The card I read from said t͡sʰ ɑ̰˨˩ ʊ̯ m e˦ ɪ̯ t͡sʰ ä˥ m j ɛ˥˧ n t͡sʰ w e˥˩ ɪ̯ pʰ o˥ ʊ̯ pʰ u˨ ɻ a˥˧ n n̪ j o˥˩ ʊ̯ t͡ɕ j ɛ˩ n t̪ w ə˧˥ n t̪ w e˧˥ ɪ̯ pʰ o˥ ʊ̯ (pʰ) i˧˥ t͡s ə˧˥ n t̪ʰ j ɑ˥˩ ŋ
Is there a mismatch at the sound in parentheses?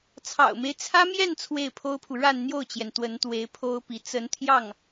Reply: yes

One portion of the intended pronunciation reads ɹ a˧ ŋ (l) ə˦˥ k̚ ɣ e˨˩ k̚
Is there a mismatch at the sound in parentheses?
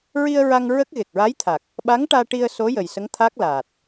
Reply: yes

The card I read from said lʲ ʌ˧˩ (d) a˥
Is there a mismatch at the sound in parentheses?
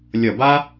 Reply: yes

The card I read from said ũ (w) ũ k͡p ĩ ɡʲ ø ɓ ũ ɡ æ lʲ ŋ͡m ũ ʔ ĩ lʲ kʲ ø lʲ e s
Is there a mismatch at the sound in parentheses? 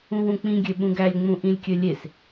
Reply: no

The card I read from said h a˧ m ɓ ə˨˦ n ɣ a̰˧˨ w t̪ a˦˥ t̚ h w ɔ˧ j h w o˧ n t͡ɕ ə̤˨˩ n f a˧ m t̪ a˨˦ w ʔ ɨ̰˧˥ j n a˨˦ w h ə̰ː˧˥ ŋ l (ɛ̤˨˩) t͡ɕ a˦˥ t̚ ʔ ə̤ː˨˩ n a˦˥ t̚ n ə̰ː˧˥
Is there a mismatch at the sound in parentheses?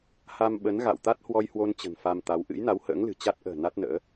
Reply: yes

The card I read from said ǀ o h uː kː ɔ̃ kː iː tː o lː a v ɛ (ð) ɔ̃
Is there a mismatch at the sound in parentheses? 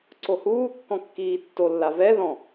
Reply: no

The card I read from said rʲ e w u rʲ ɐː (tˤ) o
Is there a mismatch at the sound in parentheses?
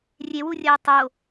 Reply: no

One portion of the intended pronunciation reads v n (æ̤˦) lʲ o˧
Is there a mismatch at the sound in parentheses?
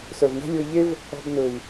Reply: no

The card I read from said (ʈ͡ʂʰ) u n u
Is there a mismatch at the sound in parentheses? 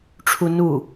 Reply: no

